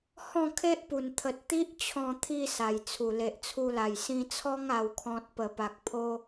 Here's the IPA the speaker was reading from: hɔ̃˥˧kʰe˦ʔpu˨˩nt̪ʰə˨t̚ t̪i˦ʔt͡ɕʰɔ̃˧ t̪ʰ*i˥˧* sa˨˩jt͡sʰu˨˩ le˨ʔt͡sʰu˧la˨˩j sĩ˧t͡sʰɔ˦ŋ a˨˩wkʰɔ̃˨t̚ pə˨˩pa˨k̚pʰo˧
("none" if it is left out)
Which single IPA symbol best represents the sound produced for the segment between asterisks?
i˧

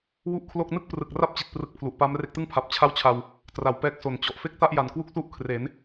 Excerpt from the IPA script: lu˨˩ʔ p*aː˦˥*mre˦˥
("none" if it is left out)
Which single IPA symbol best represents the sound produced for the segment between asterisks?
aː˦˥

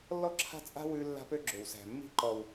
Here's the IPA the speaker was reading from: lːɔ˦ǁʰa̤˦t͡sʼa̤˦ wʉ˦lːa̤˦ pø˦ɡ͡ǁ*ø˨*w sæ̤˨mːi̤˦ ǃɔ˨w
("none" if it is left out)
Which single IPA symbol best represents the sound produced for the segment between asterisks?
ø˨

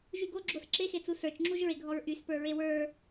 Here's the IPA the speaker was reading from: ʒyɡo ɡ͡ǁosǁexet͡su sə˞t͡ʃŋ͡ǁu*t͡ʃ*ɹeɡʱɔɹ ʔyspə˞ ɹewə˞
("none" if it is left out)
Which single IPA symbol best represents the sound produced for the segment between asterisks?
ʒ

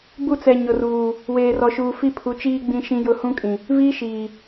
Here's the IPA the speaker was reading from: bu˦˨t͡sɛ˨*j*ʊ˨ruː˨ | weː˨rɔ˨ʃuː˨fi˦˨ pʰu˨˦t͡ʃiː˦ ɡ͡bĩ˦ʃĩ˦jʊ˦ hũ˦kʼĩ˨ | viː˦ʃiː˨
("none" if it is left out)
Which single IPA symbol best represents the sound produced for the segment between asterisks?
ɲ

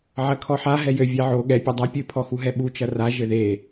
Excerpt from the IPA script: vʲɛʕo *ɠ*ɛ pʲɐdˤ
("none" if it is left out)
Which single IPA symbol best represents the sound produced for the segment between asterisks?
ɠ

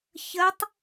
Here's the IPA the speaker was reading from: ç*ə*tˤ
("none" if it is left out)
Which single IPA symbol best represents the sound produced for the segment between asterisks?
ə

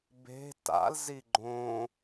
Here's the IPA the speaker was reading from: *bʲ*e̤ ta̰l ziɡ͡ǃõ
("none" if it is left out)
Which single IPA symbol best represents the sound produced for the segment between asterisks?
b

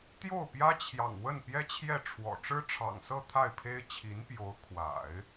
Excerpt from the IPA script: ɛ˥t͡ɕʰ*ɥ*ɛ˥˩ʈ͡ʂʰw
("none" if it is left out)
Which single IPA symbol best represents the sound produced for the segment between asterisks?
j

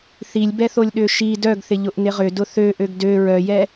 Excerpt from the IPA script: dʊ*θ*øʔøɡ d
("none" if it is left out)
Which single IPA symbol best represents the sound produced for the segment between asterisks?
θ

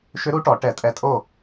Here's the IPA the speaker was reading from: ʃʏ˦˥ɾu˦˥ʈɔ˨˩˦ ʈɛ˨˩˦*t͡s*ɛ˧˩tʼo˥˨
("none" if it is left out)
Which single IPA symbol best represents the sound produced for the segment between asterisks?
tʼ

